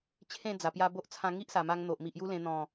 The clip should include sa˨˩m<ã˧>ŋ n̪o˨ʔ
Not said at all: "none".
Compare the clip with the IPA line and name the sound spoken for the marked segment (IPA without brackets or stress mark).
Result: a˧